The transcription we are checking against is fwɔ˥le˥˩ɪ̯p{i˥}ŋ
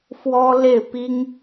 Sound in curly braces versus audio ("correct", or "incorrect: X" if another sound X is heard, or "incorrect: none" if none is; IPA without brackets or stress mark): correct